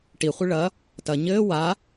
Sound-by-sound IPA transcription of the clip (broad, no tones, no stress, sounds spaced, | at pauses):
ʈ i χʷ ɨ ɭ ɐ | t ɐ ɲ ɘː w a